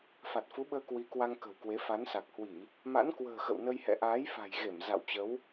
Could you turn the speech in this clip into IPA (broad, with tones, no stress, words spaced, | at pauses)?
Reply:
fa˨˩t̚fu˨˦ɓəː˧ kwi˨˦kwa˧ŋ kə̤˨˩wkwe˨˦ fa˨˦nsa˨˩k̚hwi˧˩˨ | ma̰˧˥nkwə̤ː˨˩ xə̰˧˨wnə˧jhɛ̰˧˨ ʔaː˨˦jfa̤˨˩jɣe˧˩m za̰˧˨wt͡ɕə˨˦w